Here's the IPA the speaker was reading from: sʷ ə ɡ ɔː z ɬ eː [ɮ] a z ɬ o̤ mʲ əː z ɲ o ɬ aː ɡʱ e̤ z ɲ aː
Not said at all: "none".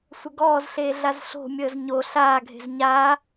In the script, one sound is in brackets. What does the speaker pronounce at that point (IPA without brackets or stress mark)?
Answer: ɮ